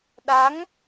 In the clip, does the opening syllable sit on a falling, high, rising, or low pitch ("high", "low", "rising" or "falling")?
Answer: rising